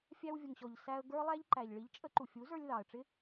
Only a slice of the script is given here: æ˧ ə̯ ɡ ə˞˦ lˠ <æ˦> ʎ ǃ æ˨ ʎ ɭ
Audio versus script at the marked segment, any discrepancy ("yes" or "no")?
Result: no